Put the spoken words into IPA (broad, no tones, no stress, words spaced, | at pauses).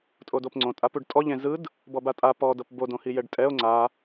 tʼodopŋ͡ǀõtʼa puɖtʼɔ ʎẽzɯd | bɔbatʼa pɔdɤp bodõhi jɛɖtʼɛo̯ ŋ͡ǀa